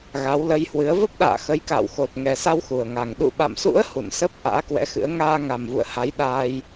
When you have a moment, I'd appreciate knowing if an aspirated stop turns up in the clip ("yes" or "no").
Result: no